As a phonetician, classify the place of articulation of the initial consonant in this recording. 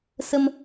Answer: alveolar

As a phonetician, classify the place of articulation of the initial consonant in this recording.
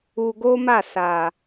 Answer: velar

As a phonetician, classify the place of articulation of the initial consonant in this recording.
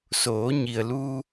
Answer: alveolar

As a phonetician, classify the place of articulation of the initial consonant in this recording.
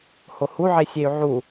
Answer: glottal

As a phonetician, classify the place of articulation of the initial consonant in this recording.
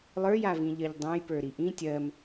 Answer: alveolar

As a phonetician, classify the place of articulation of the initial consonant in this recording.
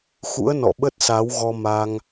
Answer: velar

